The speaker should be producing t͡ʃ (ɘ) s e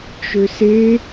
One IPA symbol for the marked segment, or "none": ø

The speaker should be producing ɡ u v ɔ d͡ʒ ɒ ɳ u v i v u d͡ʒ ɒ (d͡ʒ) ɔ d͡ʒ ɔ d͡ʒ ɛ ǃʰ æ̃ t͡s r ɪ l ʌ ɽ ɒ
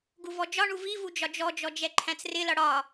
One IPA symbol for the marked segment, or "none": d͡ʒ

